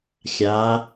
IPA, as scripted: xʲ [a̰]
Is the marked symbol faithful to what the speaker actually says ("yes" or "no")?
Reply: no